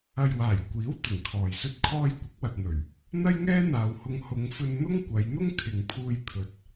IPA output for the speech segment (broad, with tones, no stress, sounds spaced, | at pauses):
ɐ˨ j w aː˨˩ j kʷ iː˨˥ w t̪ ɪ˨˩ ŋ kʰ ɔː˨ j s ɵ˥ t̚ kʰ ɔː˥ j kʷ ɪ˨˥ k̚ w ɐ˨ t̚ n̪ ɵ˨˩ ɥ | n̪ ɐ˥ j ŋ ɛː˥ n̪ aː˨ w h ʊ˧ ŋ h ʊ˨˧ ŋ f ɵ˧ n n̪ ʊ˥ ŋ kʷ ɐ˨˧ j n̪ ʊ˥ ŋ kʰ ɪ˨ ŋ pʰ uː˧ j pʰ ɵ˨ t̚